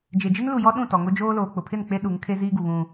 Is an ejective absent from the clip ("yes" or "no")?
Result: yes